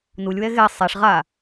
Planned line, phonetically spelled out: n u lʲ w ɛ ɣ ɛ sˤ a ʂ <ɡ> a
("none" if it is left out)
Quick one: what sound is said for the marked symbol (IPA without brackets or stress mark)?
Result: ʁ